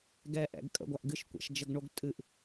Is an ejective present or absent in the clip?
present